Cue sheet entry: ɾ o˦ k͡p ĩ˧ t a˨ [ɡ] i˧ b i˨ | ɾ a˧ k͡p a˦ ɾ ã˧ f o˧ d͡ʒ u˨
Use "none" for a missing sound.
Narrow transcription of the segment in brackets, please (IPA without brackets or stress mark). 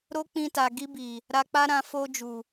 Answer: ɡ